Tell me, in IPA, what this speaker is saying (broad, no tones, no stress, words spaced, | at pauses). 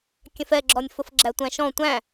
kʲɛ̃fɛɡ͡ǁɔnʲ fʊfɡ͡ǁætʷæ̃ʃɔ̃ tʷæ̃